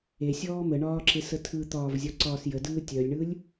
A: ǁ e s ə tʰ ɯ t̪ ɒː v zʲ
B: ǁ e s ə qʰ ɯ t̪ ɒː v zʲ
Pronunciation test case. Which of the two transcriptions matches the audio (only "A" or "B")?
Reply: A